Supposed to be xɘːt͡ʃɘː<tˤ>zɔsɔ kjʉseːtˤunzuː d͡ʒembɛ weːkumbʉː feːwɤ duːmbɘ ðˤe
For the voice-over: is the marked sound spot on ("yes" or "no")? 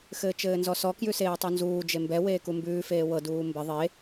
no